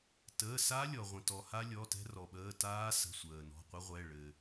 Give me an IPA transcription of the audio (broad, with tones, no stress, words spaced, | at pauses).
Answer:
təː˩˧˩sa˦˥lʲɔ˩ ʁʷə̃˩tɔ˩ha˦˥lʲɔ˩˧˩ tɛ̤˦˥rɔ˩ɓəː˩˧˩ taː˦˥sə̤˩˧˩ sʷəː˩nɔ̤˩˧˩ qʷə˦˥ʁʷɛ˩˧˩ ɭɘ˩